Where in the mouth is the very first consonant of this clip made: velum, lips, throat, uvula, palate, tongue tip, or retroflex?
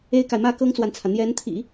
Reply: velum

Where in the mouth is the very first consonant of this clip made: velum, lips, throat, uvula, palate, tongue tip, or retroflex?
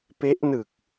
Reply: lips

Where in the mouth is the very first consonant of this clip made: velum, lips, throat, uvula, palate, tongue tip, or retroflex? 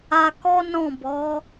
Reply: velum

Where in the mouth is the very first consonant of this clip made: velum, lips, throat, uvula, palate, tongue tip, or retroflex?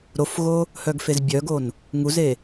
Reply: tongue tip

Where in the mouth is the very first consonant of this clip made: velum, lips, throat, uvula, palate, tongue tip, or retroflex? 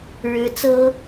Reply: retroflex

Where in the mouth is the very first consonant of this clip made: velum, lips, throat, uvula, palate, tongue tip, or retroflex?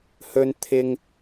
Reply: throat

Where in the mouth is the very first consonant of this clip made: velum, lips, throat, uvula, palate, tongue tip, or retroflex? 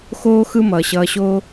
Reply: velum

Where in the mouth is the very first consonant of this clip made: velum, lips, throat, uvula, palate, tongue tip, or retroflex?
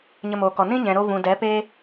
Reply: palate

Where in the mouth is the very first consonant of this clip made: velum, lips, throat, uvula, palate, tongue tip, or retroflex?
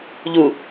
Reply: palate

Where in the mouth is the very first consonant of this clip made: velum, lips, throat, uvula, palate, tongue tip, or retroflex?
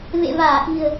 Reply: lips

